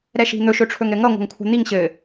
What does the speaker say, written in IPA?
ɾɛʃi̤n̪ɵ ʃɵʈ͡ʂʰɵŋɾɘŋʌ ŋʷa̤ŋkʷʰa̤n̪iŋ ɕɘ

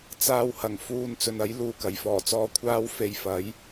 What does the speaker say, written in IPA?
t͡saː˧whɐ˨˩ŋ fuː˧n t͡sɵ˨nɐ˨˥j luː˨kɐ˨˩jfɔː˨˩t͡sɔː˧ kʷʰaː˥w fe˧jfɐ˨˥j

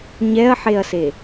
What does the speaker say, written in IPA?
ɲɛɐ̯ħeɐ̯se

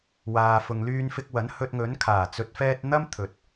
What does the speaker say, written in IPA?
waː˨fʊ˨ŋlyː˧n fɪ˧k̚wɐ˨˥n hɵ˧t̚ŋɵ˨˥n kʰaː˨˩ t͡sɵ˨t̚fɛː˧t̚ n̪ɐ˥m t̪ʰɵ˨t̚

